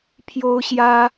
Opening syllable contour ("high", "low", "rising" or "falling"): high